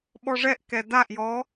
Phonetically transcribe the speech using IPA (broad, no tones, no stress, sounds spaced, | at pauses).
ɓ ɔ ʐ ɛ ʔ k ɛ d a ʔ j ɔ